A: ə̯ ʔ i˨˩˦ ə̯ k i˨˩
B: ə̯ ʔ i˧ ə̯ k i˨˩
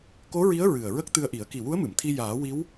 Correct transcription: A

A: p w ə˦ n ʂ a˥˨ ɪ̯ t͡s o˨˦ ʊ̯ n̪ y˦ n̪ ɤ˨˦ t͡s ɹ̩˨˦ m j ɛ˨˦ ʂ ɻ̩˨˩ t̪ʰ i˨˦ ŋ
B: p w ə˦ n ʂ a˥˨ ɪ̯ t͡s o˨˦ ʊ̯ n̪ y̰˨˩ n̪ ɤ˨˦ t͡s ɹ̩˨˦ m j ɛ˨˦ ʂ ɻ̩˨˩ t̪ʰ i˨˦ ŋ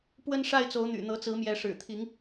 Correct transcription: B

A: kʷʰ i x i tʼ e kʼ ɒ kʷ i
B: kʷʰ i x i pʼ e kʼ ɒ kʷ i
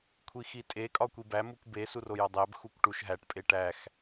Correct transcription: A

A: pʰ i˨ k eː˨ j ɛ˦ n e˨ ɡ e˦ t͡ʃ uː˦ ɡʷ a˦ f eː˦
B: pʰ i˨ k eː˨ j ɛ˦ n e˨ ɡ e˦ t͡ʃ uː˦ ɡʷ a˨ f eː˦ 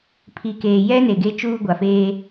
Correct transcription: B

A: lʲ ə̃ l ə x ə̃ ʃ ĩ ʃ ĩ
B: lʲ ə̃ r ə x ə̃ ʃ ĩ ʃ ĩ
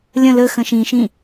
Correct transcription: A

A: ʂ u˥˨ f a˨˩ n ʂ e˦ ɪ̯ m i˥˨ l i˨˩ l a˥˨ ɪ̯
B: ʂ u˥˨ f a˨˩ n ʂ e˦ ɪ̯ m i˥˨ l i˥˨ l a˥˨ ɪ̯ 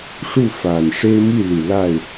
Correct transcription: A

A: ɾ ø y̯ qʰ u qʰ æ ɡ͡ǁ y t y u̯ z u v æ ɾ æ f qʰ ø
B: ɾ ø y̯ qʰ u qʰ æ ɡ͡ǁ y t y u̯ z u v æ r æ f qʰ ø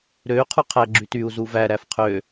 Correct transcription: A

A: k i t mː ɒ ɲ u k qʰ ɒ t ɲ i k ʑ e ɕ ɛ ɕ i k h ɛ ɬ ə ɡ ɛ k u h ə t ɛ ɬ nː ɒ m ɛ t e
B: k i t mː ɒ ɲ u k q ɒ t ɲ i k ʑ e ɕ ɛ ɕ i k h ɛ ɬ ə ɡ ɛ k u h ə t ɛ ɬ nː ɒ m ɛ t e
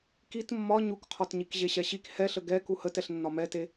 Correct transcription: A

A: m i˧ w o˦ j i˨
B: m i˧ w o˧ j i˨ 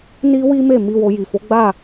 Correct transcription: B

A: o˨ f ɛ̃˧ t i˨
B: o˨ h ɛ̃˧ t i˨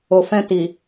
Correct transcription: A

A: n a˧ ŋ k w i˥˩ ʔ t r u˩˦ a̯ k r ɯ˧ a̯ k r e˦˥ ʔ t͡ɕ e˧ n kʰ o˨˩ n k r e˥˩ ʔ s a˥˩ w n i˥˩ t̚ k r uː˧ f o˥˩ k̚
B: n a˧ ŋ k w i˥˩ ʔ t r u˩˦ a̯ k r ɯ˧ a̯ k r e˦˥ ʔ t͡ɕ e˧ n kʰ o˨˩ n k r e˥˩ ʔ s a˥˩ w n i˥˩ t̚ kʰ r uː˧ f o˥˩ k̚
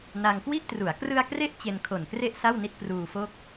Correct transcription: A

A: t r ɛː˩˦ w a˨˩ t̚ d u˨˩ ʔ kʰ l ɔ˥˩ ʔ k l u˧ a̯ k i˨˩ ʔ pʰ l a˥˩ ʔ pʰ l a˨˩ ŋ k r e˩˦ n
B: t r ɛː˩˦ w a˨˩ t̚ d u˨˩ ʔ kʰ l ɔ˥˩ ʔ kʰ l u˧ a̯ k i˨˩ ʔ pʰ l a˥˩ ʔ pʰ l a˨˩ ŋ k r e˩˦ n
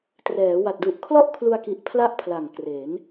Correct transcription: B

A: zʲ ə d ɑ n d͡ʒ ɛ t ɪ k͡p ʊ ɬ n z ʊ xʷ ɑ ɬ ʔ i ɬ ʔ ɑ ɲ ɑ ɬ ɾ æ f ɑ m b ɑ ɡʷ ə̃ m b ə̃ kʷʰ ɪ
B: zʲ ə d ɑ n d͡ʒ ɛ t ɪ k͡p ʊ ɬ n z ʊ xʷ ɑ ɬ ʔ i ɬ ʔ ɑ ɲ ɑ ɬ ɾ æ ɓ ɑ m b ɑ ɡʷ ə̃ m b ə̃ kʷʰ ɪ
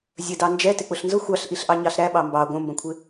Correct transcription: B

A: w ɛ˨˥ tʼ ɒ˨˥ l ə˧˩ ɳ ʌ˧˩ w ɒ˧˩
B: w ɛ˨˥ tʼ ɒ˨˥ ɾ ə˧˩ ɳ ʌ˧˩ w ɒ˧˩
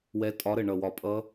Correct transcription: B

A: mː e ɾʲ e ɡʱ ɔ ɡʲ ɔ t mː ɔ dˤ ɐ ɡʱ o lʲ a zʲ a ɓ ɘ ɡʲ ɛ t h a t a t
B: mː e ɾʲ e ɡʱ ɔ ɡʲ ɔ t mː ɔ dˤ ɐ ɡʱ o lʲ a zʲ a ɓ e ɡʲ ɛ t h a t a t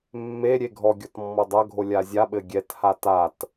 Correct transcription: A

